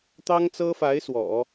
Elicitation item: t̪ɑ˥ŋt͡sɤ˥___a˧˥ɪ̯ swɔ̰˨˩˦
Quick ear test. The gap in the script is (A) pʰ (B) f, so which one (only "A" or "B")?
B